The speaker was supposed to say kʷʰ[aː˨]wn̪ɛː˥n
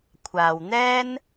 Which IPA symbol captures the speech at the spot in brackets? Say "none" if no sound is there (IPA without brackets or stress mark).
aː˨